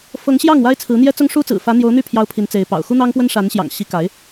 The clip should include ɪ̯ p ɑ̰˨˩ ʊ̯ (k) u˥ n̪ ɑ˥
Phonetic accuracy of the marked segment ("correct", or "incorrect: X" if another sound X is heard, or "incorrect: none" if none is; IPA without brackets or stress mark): incorrect: x